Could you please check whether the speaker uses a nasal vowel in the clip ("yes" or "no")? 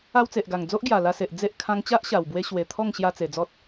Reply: yes